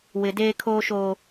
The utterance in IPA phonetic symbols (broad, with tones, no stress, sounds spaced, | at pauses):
w ɪ˨ d eː˦ kʰ oː˦ ʃ oː˦